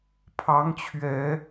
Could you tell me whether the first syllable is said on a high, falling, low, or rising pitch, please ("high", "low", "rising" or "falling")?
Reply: rising